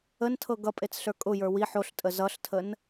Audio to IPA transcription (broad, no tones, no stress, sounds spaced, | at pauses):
ə n tʰ ɤ ɡ ʌ pʼ e t͡s ɬ ə˞ kʼ ʊ j ə˞ w i ħ o ɬ tʼ ə z ʌ ɬ tʰ ə n